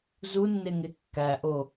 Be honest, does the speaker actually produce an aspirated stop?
no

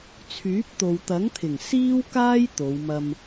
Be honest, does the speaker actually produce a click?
no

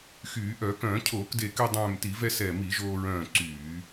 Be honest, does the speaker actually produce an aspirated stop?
yes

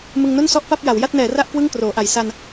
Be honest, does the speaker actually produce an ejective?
no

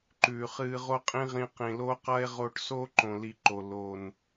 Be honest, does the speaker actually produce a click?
yes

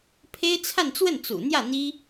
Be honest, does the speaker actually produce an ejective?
no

